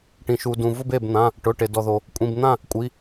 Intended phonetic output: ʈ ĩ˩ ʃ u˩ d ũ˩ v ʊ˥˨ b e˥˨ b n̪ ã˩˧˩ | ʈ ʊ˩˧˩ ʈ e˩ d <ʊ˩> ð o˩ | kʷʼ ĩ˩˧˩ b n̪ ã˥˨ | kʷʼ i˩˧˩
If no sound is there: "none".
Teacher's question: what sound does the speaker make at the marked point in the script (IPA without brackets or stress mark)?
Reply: ɔ˩